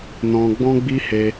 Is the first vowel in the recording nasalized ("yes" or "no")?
yes